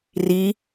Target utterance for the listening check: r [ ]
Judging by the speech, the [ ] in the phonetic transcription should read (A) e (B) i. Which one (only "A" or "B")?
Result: B